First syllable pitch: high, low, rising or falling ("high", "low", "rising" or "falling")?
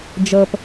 low